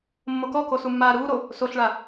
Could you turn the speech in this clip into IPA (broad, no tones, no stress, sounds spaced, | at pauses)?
mː o k ɔ k o s u mː aː ɾ uː ɾ o | s o ɬ ɭ a